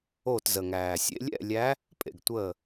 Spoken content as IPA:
o˧˩ t z ə˩ ŋ æː˩ sʲ ḛ˨˦ lʲ ɛ̰˥˨ lʲ æ˨˦ | pʼ ḛ˩ ɡ tʷ əː˧˩

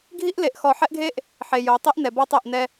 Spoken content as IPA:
ɡʱ i˦ ʔ l e˨ ʔ x ɔ˨ ħ ɛ˦ ʔ ɡʱ e˦ ʔ | ħ e˨ j o˨˦ tˤ i˦ ʔ n ɛ˨ b ɔ˦ tˤ e˦˨ ʔ n ɛ˦

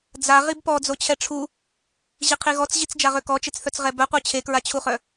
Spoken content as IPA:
d͡z a ʁ i b p ɔ d͡z o t͡ɕʰ ɛ ʈ͡ʂʰ u | ʑ i qʰ i ɣ ɔ t͡s ʑ i t͡s d͡ʒ a ʁ ø k ɔ t͡ʃ e t͡s θ œ t͡s ʁ ɛ b œ qʷ œ t͡ɕʰ e k ɹ a t͡ɕʰ u χ œ

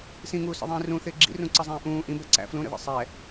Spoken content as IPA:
s ĩ ŋ uː s ə̰ ðˤ ĩː r ũ θ ɪː ɡ͡ǁ ḭ r ũ ǀ ə zˤ ĩː ʔ ũː ʔ ĩ b ɛ ǀ æ̰ f l ũ ɾ ə̰ ð ḭ sˤ ɛː

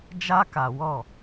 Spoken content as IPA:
d͡ʒ a˦ k a˨ w ɔ˦˨

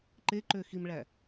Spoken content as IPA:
ǃ e ǃ ø x i m ɭ æ

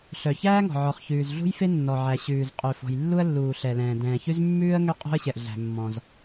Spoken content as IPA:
ɬ œ˩ ç æː˥ ŋ ɔ̤˩ ʕ ɔ˩ χ ç ʉː˩ z ɮ ṳ˥ j f e˥ nː ɔ˩ ʕ æ˩ ɕ ʉː˩ z qʼ ø˩ f ɔ̤˩ j lː u˥ ə̯ lː uː˩ ɬ ɛ˩ l ɛ̃ː˩ d ɛ̃ː˩ ç ʉ˥ z mː ʉː˥ ə̯ ŋ ø˥ qʼ o̤˥ ə̯ ɕ ɛ˩ ʔ ɮ æ̤˩ mː ɔ̃˩ z

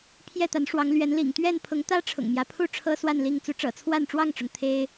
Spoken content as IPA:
pʰ j ɛ˥˨ t̪ a˨˦ n ʂ w ɑ˨˦ ŋ l ɥ ɛ˨˦ n l ḭ˨˩ ŋ t̪ ɥ ɛ˥˨ n pʰ ʊ˨˦ ŋ t̪ ä˦ ʈ͡ʂʰ ʊ̰˨˩ ŋ m j ä˦ pʰ u˥˨ ʈ͡ʂʰ ɤ˦ s w a˥˨ n l i˥˨ ŋ t͡s u˨˦ ʈ͡ʂ ɤ̰˨˩ t͡sʰ w a˥˨ n ʈ͡ʂ w ɑ˥˨ ŋ ʈ͡ʂ ʊ˩ ŋ t̪ʰ e˦ ɪ̯

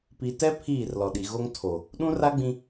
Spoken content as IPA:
p i˨ t ɛ˦ pʰ iː˦˨ r l ɔ˨ ɗ i˨ ɣ o˦ ŋ tʰ o˨ | ɗ ũ˦ r a˦ ɡ͡b ĩ˦

